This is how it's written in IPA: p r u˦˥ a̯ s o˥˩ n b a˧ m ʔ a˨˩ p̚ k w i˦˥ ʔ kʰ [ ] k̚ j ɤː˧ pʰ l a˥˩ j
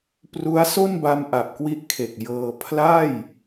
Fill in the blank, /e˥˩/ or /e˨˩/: e˨˩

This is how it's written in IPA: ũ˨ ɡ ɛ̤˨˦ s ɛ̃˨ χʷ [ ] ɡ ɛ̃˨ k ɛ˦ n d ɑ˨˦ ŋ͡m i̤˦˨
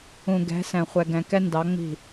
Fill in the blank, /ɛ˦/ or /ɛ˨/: ɛ˨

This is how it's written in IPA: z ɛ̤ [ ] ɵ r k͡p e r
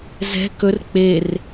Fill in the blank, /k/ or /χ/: k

